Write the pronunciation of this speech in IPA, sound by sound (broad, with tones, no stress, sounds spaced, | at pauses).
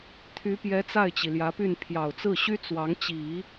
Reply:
t̪ʰ y˧˥ p j ɛ˧˥ t͡s a˥˩ ɪ̯ t͡ɕ i˩ l j ä˧˥ p y˥˩ n pʰ j ɑ˨˩ ʊ̯ t͡s ɹ̩˥˩ ɕ y˥ t͡s w ɑ˧˥ ŋ t͡ɕ i˨˩˦